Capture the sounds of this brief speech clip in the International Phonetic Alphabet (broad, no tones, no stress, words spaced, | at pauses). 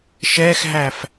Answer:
ʃɛxɦæf